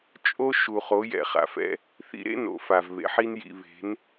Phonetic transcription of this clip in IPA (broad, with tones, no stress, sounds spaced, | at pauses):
t͡ʃʼ o˦ ʃ u˨ χ o˨˦ j ɛ̰˨ χ a̰˨ f ɛ̰˦ | θ ḭ˨ ɾ ḛ˦ n o̰˨ f a˨ v β ḛ˨ ħ i˦ n j ḭ˨ β e̤˨˦ n